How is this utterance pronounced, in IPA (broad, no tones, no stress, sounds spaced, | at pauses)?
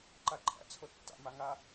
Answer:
ǃ a ǃʼ æ̰ t͡sʰ o tː a̰ m a ŋ a